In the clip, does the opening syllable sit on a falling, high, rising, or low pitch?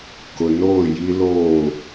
low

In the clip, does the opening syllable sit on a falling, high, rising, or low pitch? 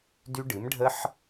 high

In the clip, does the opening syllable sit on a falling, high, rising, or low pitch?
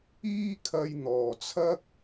high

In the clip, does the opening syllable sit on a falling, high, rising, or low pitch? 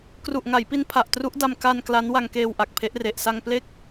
low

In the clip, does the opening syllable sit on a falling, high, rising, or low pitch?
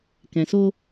low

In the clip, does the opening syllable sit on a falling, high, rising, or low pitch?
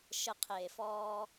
low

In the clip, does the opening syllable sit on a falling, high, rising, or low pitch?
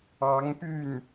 rising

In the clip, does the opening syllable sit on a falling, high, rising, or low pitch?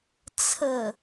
low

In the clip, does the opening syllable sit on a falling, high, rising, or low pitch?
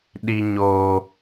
high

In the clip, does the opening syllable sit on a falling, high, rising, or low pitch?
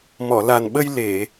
low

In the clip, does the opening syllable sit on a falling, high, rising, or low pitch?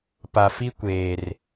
low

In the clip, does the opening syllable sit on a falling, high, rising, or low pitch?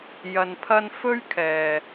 low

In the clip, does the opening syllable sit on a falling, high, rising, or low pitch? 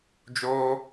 high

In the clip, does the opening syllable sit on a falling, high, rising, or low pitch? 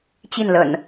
falling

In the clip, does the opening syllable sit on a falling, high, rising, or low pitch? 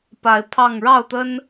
rising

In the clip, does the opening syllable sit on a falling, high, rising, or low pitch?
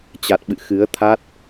low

